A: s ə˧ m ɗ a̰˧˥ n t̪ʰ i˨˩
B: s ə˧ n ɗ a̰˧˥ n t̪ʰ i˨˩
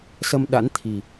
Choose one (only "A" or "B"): A